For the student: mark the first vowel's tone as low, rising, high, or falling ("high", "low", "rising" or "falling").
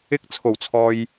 high